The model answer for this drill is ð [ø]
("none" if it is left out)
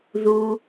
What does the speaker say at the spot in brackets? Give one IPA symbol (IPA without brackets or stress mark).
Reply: u